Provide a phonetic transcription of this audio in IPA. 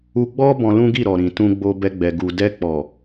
u˧ ɡ͡b ɔ˦ b ɔ̃˧ l ũ˦ ɡ i˦˨ ɾ ɔ˨ ɾ ĩ˨ t ũ˧ ɡ͡b o˧ b ɛ˧ ɡ͡b ɛ˨ ɡ u˨ d ɛ˧ k͡p ɔ˨

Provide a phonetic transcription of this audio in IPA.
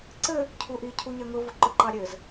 ǀ ɘ | cʰ u ʔ i cʰ u ɲ ɐ ŋ ʊ v ʊ ǃ ʊ ǃ ɑ ɾʲ ɘ z

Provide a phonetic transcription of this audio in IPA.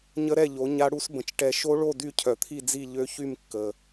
ɲ ə˦˥ ɾ ɛ˥˨ ʎ o˨˥ ɲ a˦˥ ɽ u˦˥ s b ə̃˨ t͡ʃ ʈ ɛ˨˥ ʃ o˦˥ ɭ o˥˨ d y˥˨ cʰ œ˨ t̪ʰ i˥˨ d͡z i˥˨ ʎ ø˦˥ ç y˥˨ m kː ə˨

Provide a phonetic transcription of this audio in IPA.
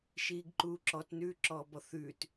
ʃ iː ɡ ǃ uː ǁ ɔ t n ʉː ǁ ɔː b ɔ θ ʉː t

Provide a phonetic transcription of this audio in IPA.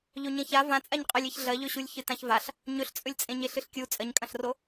ʎ o ɲ ẽ ç a v ã t͡sʼ a ɲ qʼ a lʲ e ç ɮ ɐ ʎ ɵ ɕ u lʲ ç ɨ t ã ç v a ɬ | ɲ ɵ ɬ t͡sʼ ɵ lʲ t͡sʼ ẽ ɲ e ɬ ɨ ɬ kʲ u t͡sʼ ɐ ɲ kʼ ɐ̃ ɬ r o

